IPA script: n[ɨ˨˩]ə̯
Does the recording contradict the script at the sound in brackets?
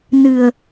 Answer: no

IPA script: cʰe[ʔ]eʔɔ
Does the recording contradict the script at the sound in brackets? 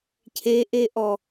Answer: no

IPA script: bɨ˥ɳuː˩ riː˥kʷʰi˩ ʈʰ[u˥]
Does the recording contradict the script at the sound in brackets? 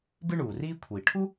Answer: no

